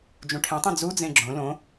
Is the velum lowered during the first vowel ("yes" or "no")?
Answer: yes